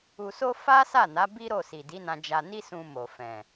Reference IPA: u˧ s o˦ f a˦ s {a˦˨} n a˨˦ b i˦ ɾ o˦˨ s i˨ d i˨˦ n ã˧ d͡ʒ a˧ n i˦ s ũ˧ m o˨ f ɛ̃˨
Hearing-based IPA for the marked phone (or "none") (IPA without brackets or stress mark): a˦˨